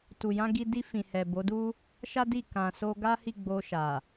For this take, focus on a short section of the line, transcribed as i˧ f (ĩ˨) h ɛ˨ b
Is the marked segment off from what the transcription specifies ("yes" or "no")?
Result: no